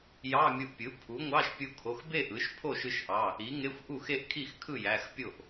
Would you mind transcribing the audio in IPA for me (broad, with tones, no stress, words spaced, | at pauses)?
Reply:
jɑ˧˥˧mʲu˧ʔpʲɯ˩˥ pʰu˩˥ŋʷɑ˧˥˧ʃ pʲu˧kʰo˩˧˩xbe˥˧ ʔɯ˩˥ʃ pʰo˥˩ʃɯ˧ʃʔɑ˩˧˩ | i˩˥ŋe˧˥˧xʷ ʔu˥˩ xe˥˧ʔkʰi˥˩xkʰɯ˥˩ jæ˩˧˩xpʲo˥˩ʔ